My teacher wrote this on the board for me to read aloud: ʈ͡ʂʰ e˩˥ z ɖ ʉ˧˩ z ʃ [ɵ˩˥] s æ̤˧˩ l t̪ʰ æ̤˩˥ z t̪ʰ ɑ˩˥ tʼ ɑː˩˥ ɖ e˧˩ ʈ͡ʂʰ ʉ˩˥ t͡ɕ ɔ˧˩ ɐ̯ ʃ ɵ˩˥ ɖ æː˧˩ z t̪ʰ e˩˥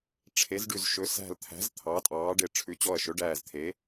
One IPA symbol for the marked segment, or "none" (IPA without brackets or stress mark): ɵ˩˥